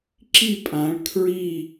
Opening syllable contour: falling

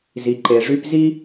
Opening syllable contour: low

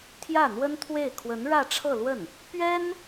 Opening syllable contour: falling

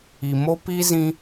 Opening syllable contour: low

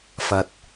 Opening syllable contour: low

